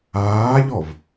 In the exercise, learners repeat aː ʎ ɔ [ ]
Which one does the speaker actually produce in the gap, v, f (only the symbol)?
v